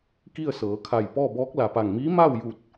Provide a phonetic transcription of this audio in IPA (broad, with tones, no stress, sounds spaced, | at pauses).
k i˥˨ ə̯ s ɤː˩˧ kʰ a˧˩ j p ɔː˥˨ b ɔː˧˥ k̚ l a˩ p a˧˩ ŋ m iː˧˥ m aː˥˨ w j u˧˩ t̚